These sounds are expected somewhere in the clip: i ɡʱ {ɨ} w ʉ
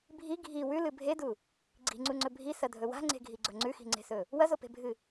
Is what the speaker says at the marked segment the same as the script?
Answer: no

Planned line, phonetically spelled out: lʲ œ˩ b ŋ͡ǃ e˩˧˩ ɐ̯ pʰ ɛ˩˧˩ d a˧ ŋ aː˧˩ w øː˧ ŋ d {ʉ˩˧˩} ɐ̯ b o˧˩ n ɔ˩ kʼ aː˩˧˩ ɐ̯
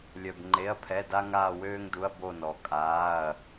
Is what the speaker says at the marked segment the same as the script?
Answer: no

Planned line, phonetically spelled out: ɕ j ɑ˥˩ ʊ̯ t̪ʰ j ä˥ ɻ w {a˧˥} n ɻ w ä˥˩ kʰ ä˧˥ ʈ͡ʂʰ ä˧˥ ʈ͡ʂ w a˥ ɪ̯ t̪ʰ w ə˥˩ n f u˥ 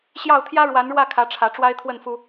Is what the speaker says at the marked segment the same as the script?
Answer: yes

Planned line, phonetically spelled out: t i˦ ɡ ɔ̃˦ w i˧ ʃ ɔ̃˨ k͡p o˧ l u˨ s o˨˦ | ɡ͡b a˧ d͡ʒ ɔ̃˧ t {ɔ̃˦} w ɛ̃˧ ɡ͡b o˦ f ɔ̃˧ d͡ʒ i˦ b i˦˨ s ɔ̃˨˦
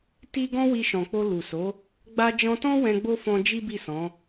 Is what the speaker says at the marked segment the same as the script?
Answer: yes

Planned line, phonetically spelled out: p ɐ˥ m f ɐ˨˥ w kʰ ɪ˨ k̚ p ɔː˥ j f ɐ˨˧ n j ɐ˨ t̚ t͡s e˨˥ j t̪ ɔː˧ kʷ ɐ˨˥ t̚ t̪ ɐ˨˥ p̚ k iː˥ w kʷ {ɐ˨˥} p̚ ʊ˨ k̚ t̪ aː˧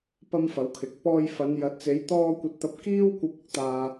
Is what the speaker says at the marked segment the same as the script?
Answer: no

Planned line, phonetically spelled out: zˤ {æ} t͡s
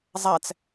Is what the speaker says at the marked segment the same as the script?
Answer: yes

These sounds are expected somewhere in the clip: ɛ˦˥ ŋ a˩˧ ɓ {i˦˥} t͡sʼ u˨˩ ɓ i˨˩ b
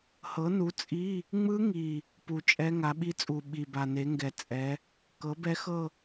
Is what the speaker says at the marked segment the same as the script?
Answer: yes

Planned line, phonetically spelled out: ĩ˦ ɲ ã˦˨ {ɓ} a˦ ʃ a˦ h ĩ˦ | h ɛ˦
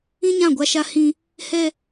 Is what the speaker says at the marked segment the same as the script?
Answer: no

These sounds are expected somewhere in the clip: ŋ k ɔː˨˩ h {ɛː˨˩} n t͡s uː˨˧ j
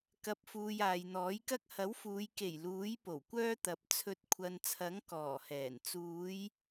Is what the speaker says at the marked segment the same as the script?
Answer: yes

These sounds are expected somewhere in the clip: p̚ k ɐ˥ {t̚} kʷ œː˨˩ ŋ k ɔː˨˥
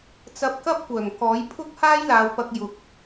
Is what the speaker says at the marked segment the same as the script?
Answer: no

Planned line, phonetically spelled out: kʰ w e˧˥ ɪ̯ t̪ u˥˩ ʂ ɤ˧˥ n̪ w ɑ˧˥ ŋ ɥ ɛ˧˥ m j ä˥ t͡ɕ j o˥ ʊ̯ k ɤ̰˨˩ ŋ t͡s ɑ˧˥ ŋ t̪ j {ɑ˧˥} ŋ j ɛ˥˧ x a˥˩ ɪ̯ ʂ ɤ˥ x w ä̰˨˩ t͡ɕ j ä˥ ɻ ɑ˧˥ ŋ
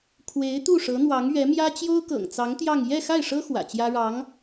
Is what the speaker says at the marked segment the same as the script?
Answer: no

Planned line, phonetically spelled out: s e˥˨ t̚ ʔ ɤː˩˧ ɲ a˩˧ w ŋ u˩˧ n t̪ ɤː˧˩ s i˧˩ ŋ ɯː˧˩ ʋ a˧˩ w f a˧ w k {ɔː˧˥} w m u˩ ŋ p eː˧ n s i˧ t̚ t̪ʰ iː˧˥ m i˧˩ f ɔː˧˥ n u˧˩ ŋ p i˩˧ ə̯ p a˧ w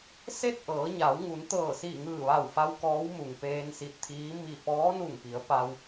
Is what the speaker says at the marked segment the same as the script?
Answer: yes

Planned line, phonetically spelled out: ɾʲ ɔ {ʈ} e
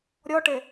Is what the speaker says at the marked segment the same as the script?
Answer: yes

